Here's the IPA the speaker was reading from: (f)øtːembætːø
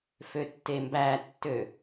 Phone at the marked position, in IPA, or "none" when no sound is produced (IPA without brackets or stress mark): f